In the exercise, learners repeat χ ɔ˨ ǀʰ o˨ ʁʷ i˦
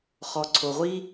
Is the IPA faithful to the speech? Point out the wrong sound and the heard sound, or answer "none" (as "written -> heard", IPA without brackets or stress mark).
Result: none